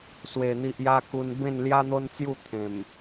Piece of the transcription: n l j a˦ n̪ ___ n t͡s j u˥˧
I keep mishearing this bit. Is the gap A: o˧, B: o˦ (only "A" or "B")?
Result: B